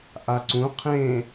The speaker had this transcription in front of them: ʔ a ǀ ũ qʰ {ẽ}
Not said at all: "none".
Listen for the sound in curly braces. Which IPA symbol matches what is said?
ẽ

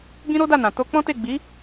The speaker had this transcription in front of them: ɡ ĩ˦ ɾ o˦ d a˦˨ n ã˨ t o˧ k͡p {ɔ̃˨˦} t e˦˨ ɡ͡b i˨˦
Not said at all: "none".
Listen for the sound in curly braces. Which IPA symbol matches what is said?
ɔ̃˦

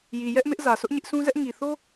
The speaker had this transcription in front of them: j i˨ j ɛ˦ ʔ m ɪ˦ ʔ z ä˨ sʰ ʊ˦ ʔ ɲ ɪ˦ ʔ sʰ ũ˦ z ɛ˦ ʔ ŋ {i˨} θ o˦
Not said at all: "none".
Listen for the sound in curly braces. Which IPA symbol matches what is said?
i˨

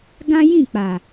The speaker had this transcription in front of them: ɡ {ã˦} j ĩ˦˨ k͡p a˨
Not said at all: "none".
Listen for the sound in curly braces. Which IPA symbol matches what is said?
ã˦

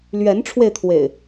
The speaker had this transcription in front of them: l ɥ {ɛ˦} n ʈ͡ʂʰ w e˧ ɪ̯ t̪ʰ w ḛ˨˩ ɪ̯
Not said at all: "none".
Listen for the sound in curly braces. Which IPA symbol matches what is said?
ɛ˨˦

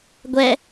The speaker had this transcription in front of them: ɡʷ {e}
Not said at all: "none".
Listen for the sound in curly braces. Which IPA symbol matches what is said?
ɛ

